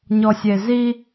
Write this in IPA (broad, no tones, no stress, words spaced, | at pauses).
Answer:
ɲɔsʲezi